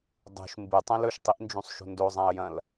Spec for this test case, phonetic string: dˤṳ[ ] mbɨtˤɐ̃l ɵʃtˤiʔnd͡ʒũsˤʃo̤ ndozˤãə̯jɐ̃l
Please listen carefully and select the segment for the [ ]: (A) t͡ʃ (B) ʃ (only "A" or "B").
B